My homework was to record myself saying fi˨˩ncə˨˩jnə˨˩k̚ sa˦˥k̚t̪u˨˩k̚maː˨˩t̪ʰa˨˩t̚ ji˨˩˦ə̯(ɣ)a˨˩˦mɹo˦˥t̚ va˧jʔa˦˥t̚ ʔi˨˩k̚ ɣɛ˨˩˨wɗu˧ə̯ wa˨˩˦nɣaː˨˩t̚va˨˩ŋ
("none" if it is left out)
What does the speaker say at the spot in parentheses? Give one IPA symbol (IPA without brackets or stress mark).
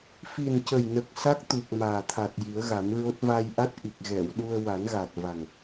ɣ